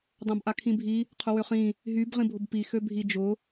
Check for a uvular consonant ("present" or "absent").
present